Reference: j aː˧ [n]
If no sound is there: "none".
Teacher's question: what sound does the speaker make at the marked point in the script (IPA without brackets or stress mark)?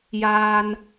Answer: n